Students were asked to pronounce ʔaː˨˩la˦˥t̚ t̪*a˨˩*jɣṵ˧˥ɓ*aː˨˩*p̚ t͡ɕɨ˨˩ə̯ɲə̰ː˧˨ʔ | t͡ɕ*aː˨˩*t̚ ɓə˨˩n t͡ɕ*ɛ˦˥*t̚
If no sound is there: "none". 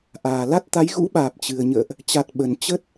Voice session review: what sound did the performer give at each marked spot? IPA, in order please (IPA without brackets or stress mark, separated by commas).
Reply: a˨˦, aː˨˩, a˨˩, ə˦˥